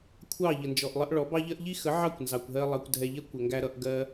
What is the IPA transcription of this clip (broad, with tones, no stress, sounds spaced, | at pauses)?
kʷʰ ɑ˦˨ ʎ ə˨ n d͡ʒ ɔ˨ ʔ lˠ ə˧ ʔ ɭ ɔ˨˦ b ɑ˦ ʎ ɜ˦ ʔ ʎ i˦ x ə˨˦ ʕ ɑ˦˨ kʷ n z ɑ˨ kʷ ɦ ɜ˧ lˠ ɑ˧ kʷ dʱ ɛ˧ ʎ ɛ˦ kʷ ə˨ ŋ ɡ æ˧ ɾ ʌ˧ ʔ ɡ ɜ˦